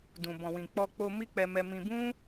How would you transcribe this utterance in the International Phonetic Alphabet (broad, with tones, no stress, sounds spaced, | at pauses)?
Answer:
d ũ˨ b ɔ̃˨ w ĩ˨ k͡p ɔ˧ k͡p o˧ m i˦ k͡p ɛ˧ m ɛ˧ m ĩ˧ b ũ˦